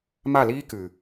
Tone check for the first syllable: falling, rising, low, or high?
falling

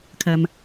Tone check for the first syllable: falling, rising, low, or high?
low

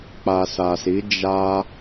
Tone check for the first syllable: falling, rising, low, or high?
low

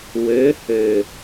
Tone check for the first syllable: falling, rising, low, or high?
rising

